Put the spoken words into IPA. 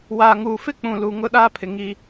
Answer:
w aː˨ ŋ uː˨ f ɪ˦ k͡p ũ˨ l u˨ ŋ ʊ˦ ɗ aː˦ pʰ ɪ˨ ŋ i˦

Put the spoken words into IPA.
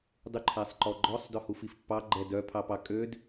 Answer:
dˤ ʉ ǃʰ æ sˤ ǃ ɔ ɡ͡ǃ ɔ sˤ d œ h u f i f pː ɑ ɡ͡ǃ ɛ d œ pʰ ɑ p ɑ kʼ ø d

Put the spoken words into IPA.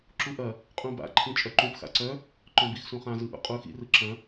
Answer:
ǁ u ʔ ɐ | qʼ ũ b a̰ ǃʰ ĩ t͡ʃʼ œ ǃ ũ p x a̰ ǀ œ | ǃ œ̃ b i x s ũ χ ã z ɯ ʔ ṵ qʼ u x ḭ r ɯ ǁ ɐ̃

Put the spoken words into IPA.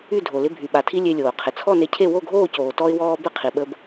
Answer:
y˥˨ dʱ o˩ l ɪ˧ bʱ y˩ ɓ a˩ tʰ i˧ lʲ e˧ lʲ oː˩ qʰ ɪ˩ t͡sʰ ɔ˥˨ n e˧ cʰ e˥˨ w o˥˨ ɡʱ oː˥˨ c oː˩ t ɔ˧ ɪ̯ w ɔː˧ b ɪ˥˨ qʰ i˩ ɓ ə˧ b

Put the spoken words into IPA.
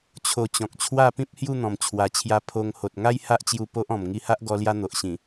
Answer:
t͡ɕʰ o˧ t͡ɕ ɔ̃˨ k̚ t͡ɕʰ w a˥˧ p ĩ˦ p̚ h j u˥˧ n̪ ɔ̃˨˩ m t͡ɕʰ w a˨˩ t͡ɕʰ j a˧ pʰ o˧ ŋ h o˨ t̚ ŋ a˦ j h a˦ ʔ t͡ɕ j u˧ p o˦ ʔ ɔ̃˨˩ m ŋ i˧ h a˦ ʔ ɡ ɔ˧ l j a˧ n̪ o˨ ʔ ɕ ĩ˨˩

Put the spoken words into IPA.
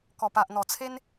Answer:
k ɔ˨˩ p a˨ ʔ n̪ ɔ˨˩ t͡sʰ e˦ n

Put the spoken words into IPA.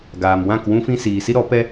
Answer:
ɡ aː˨ m w ã˦˨ k w ũ˧ f ĩ˧ s iː˨ s i˦ ɾ ɔ˨˦ p ɛ˦

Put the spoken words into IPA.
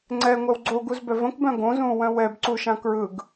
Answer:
ŋ͡ǀ ɛ ŋʷ œ w ɡ͡ǀ o ɡ u z b œ v ə̃ k b œ̃ ɡ õ z ũː w œ̃ w ɛ b ǀ u ʃ ã k ɹ ɯ ɡ

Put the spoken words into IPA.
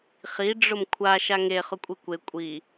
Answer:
χ i ɖ͡ʐ ʊ m kʷʰ a ʃ a ŋ e χ ʊ kʷʼ i kʷ e kʷʼ i

